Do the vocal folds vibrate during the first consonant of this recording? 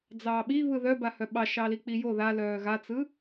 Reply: yes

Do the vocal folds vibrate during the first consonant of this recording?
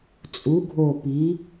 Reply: no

